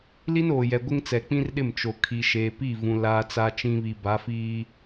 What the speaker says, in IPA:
l i˦ n oː˨ j ɛ˨ ɡʷ ɪ˦ ŋ t͡s ɛ˨ k͡p ĩ˦ r ɗ ɪ˦˨ m t͡ʃ o˨ kʰ i˨ ʃ eː˨ p i˦˨ v ũ˨ l aː˦ t͡s a˦ t͡ʃ ĩ˦ β i˨ b a˨˦ f iː˦

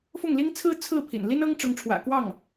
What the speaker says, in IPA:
f ʊ˥˩ ŋ l i˥ ŋ t͡sʰ ɹ̩˥ t͡sʰ ɹ̩˥˩ pʰ ḭ˨˩ n l i˥ n ɤ˥ ŋ ʈ͡ʂ ʊ˧˥ ŋ ʈ͡ʂʰ w ä̰˨˩ k w ɑ˥˩ ŋ

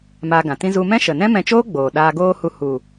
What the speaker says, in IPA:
m aː˧ ɡ ã˨ t ĩ˦ z u˧ m ɛ̃˦ ʃ ə˨ n ɛ̃˦ m ɛ̃˧ t͡ʃ oː˦ ɡ͡b oː˨ ɗ aː˧ ɡ oː˦ h u˧ h u˨

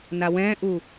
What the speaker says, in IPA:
n a w ɛ̃ ʔ u

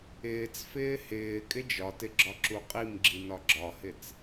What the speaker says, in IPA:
ɪː t͡s f ɪː h ɪː kʼ ɪ d͡ʒ ɒ t ɪ ɡ͡ǁ ɒ ǁ u qʼ i m ɡ͡ǁ i n ɒ ɡ͡ǁ ɒ h ɪ t͡s

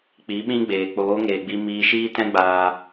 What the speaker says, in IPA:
k͡p i˨˦ ɓ ĩ˦ ɡ͡b eː˨ k͡p oː˨˦ ŋ eː˨ ɡ͡b i˧ m iː˧ ʃ iː˦ t ɛ̃˦ ɡ͡b aː˧

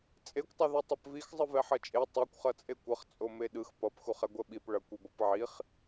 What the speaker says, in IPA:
t͡sʼ e kʷ tˤ ʌ ð o tˤ ʌ p v i x zˤ ɯ v ɛ ħ ʌ t͡ʃʼ e tˤ ɛ kʷ χ ʌ t͡sʼ e kʷ ʌ χ t͡sʼ o m e ɗ ɯ x p ʌ p x u χ ɛ ɡʷ ɛ ɓ i p ɭ ʌ kʷ i b ʌ p ʕ i χ

